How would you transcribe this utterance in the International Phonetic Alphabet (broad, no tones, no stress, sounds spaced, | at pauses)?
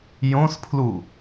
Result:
j õ s pʰ l u